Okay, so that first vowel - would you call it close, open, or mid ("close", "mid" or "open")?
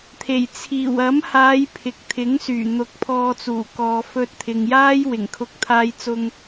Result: mid